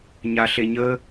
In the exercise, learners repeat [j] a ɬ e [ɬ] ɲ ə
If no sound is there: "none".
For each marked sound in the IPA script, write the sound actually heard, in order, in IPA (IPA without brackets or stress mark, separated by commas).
ɲ, none